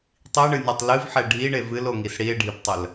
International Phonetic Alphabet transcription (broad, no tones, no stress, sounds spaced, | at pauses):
tˤ i ɳ ɨ nʲ ɛ tˤ l ɨ v ħ ɛ ɖʱ i ɳ e v ɨ l o ŋ i s ɽ i e̯ ɖʱ i p tˤ ə l